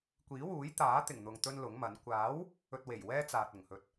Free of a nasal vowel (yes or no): yes